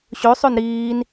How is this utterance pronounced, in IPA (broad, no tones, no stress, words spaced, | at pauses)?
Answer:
ɕøsˤøn ɾiːn